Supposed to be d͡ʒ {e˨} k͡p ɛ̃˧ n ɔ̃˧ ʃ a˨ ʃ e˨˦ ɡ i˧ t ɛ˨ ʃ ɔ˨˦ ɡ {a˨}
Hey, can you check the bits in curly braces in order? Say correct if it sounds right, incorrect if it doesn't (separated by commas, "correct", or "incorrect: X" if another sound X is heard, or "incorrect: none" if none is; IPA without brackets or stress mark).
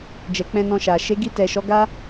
incorrect: ɛ˨, incorrect: a˦